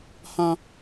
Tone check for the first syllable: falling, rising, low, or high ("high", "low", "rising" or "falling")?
high